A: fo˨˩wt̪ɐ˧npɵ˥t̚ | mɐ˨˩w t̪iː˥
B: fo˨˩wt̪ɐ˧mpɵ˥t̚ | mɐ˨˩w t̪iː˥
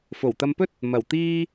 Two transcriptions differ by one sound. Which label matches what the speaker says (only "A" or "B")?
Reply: B